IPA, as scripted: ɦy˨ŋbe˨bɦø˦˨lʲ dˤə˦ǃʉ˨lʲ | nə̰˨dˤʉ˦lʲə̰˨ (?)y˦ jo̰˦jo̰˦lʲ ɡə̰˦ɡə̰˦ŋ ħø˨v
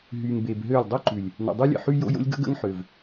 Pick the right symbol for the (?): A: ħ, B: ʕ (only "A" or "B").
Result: A